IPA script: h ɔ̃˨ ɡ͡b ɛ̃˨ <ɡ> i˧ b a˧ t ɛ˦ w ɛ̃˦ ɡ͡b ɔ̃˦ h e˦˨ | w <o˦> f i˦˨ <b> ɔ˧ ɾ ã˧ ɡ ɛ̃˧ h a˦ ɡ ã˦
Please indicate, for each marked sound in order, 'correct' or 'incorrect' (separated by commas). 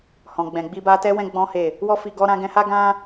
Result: incorrect, incorrect, incorrect